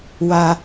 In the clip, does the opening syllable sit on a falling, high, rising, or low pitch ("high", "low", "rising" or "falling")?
high